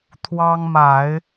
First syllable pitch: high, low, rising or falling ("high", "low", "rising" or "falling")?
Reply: high